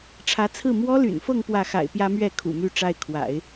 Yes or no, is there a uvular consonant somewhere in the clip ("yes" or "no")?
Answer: no